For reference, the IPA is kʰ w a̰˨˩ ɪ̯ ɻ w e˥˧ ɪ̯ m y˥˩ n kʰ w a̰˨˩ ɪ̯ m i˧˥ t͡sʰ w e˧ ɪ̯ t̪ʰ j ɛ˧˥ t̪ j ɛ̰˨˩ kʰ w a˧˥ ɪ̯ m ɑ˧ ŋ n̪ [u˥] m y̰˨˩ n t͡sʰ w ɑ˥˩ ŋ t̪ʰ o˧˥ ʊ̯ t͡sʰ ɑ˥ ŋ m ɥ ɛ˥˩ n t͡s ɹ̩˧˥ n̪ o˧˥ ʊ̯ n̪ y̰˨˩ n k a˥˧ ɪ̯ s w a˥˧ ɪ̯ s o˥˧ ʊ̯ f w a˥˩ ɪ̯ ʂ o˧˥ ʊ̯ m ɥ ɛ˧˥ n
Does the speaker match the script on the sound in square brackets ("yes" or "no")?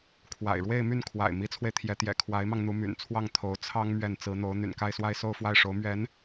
no